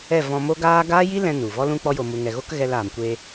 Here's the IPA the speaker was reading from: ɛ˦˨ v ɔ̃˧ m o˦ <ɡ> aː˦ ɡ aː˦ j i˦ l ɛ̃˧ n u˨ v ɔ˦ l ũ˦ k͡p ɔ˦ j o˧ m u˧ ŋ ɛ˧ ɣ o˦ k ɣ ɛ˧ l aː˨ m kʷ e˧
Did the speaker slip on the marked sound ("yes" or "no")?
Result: no